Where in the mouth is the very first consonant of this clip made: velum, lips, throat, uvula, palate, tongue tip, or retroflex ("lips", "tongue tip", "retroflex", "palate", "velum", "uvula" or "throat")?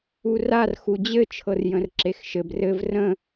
tongue tip